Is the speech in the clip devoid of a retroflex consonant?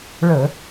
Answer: no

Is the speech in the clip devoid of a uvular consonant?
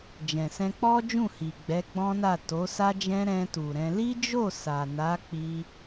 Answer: yes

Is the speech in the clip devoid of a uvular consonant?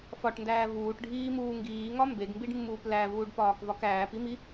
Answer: yes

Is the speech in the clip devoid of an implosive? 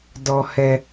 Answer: yes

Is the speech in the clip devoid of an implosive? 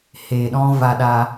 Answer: no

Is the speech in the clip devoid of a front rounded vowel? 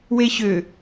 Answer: no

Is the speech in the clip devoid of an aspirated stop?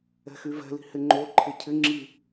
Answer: no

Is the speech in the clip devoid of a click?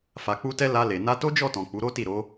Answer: yes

